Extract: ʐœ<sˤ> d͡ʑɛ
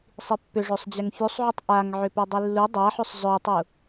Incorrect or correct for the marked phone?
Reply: correct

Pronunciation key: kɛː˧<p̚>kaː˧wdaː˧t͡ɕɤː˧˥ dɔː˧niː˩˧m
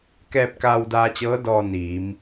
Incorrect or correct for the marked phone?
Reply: correct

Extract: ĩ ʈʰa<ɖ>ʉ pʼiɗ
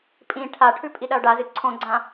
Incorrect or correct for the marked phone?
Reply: incorrect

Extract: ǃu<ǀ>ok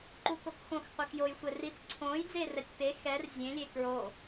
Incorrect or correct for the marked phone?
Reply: incorrect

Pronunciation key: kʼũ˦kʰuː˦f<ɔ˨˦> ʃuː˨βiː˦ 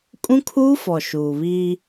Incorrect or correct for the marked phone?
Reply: incorrect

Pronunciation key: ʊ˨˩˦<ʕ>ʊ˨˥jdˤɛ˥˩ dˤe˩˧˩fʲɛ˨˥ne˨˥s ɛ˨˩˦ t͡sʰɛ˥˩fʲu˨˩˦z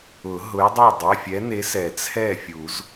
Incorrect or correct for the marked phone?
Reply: incorrect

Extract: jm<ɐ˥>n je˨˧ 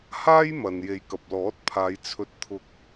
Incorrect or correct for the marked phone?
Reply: incorrect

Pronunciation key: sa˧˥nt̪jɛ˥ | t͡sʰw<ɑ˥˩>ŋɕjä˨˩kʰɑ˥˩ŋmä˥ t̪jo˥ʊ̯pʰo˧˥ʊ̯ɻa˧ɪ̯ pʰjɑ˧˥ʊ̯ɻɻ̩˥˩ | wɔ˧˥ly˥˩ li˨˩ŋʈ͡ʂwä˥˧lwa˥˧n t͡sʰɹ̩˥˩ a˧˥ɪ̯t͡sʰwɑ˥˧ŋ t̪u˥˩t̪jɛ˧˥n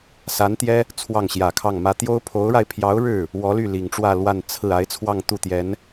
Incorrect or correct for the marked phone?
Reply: correct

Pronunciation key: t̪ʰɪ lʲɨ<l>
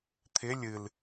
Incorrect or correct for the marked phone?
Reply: correct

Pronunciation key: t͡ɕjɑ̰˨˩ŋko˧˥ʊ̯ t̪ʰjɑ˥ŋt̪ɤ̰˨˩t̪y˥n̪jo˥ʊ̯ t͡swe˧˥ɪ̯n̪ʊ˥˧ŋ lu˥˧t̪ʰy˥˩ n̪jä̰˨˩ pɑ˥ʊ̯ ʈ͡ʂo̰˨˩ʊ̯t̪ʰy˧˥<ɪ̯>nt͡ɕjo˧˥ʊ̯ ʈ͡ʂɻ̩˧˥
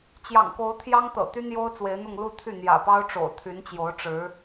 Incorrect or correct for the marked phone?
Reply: incorrect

